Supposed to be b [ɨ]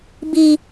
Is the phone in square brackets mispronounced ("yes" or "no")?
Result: yes